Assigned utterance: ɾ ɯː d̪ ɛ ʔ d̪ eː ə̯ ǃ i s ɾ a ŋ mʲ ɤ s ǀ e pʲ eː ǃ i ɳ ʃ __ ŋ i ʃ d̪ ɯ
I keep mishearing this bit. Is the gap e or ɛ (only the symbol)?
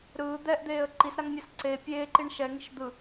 ɛ